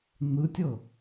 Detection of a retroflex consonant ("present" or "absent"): absent